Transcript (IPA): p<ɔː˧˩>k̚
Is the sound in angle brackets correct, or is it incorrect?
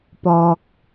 incorrect: ɔː˧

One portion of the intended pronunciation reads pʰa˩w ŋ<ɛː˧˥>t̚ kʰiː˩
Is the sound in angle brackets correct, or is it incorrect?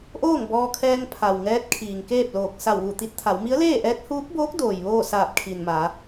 correct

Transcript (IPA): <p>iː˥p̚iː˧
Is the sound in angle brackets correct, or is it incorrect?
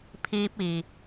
incorrect: pʰ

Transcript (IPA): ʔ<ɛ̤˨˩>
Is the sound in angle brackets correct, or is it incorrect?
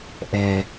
correct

